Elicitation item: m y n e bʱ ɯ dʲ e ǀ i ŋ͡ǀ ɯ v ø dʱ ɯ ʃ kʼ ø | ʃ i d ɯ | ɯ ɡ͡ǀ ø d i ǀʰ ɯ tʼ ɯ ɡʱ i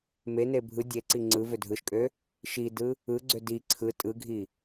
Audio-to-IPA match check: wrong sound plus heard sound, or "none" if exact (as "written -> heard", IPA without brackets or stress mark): y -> e